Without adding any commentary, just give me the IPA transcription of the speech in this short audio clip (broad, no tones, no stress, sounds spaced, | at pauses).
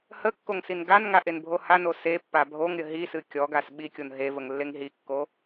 h ə kː o ŋ s i n ɡ a n ŋ a ʔ e n bʱ o h a n o s e pː a bʱ o ŋ ɾʲ ə ɦ i s ɨ kʲ ɔ ɡ a s ɓ i kʲ o n ɦ e v ə ŋ lː e ŋ ɦ i kː o